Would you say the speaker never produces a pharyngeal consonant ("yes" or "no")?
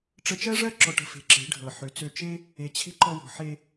no